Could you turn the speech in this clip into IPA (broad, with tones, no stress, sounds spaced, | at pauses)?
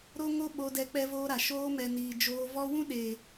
ɾ o˦ ŋ o˦ ɓ o˧ d ɛ˧ k͡p ɛ˦ v oː˦ ɾ a˨ ʃ oː˧ m ɛ˨ n iː˨ d͡ʒ oː˧ v ɔ˦ w ũ˦ ɗ eː˨